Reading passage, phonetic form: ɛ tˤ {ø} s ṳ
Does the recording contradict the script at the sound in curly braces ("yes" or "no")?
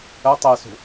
yes